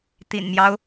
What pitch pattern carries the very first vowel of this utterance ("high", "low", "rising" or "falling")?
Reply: low